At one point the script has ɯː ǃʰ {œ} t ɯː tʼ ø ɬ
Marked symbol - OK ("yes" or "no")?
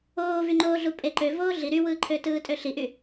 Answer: no